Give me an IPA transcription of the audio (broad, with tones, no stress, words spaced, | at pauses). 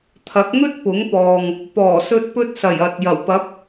t̪ʰɐ˨˥k̚ŋɵ˥t̚ pʊ˨˥ŋpɔː˨ŋ | pɔː˨˩sɵ˧t̚pɵ˧t̚sɐ˨˩j ɐ˨t̚ jɐ˨˩wpɐ˨˥p̚